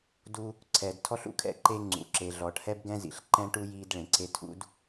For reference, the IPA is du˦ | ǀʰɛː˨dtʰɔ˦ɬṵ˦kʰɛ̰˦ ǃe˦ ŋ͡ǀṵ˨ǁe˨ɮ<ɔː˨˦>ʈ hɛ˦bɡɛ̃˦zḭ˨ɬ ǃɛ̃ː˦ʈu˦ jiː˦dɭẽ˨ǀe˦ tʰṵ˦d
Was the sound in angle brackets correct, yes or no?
no